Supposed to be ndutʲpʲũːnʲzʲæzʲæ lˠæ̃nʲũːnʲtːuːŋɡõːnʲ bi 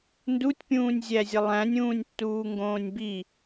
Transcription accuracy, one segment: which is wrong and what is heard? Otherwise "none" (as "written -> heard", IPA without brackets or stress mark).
none